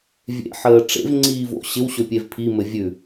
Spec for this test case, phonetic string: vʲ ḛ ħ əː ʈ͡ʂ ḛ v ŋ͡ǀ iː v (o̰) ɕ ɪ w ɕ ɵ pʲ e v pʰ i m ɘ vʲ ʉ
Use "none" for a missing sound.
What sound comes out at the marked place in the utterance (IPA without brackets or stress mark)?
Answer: o̰